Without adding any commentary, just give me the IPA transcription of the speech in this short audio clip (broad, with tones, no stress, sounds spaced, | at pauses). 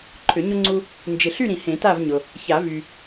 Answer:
ǃʰ ʏ˨˩˦ ɲ ʊ˦ ŋ͡ǀ u˦ | n d͡ʒ ɪ˨ ɬ y˥˨ ɾ ĩ˨˩˦ h ẽ˨˩˦ t a˥˨ v ɲ ʊ˨ | ç a˨˩˦ v y˨